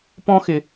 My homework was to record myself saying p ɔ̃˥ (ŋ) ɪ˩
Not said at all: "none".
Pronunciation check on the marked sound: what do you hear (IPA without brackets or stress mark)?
x